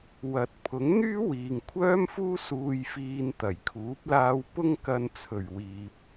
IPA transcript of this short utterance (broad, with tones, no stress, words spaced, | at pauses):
wɐ˨˥t̚pʰʊ˨˥ŋn̪yː˥ wiː˨ŋkʷʰœː˥mfuː˥ suː˧jfiː˧nt̪ɐ˨˩jkʰuː˨˥p̚ laː˧wpʊ˥ŋkɐ˧nt͡sʰɵ˨˩ɥ wiː˨p̚